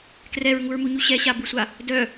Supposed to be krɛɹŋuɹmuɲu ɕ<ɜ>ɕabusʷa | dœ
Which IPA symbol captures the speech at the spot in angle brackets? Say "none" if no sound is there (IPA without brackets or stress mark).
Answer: ɛ